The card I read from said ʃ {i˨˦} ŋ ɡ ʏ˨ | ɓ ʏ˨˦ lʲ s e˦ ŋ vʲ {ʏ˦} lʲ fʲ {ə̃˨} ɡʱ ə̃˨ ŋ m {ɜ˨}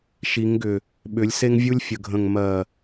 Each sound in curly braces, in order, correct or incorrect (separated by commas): correct, incorrect, incorrect, correct